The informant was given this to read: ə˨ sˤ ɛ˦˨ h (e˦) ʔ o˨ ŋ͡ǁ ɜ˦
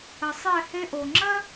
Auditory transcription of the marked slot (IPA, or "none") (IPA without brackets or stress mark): e˦